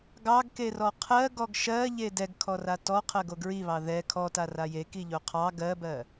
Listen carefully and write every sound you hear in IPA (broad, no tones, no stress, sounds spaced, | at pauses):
ɡ ɑ ɡ k e r ɔ qʰ ɜ ɡ ɔ ɡ ʃ ɜ ʎ e d ɛ ɡ kʰ ɔ r a t ɔ qʰ ɜ ɡ o ɡ ɹ i β ɑ ð ɛ kʰ ɔ t a r a j e k i ʎ o qʰ ɑ ɡ ɜ b ɜ